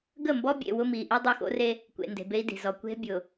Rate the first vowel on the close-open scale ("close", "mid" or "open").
mid